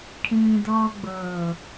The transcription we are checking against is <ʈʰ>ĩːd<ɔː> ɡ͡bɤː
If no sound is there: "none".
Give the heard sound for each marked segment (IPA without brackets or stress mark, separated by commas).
ʈʰ, ɔː